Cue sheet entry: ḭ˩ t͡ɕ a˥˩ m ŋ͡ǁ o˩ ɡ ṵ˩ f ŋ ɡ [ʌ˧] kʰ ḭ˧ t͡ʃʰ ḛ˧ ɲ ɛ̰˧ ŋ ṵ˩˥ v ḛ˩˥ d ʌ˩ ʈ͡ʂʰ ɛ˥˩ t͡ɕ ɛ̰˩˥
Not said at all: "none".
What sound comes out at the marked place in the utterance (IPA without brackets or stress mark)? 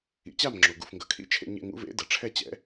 ʌ˩